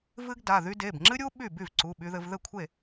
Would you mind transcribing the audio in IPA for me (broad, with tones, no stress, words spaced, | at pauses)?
vɨ˥ɡda˩˧˩ðy˥ de˩˧˩b ŋ͡ǁɨ˥ɾʲu˥ ɓy˥˩ by˥˩vǀu˩˧˩ ɓy˧ðɘ˧v ðɘ˥˩kʷʰe˥˩